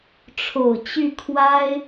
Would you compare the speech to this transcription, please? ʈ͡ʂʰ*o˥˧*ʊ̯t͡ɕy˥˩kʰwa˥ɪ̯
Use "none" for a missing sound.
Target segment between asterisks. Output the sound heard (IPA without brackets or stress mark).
o˨˩